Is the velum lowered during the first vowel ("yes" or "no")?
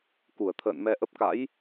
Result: no